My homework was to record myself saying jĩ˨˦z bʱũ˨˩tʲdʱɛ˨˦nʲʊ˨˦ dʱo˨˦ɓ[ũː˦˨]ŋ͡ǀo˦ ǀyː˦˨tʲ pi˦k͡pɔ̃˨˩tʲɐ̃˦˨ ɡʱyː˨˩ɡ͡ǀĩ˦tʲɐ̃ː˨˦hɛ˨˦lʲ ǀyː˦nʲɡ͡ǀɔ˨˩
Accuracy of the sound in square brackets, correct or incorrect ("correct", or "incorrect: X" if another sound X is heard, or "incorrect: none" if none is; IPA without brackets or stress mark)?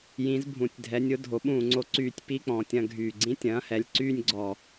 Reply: correct